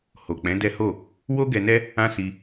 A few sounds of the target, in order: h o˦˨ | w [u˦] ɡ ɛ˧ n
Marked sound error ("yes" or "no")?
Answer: yes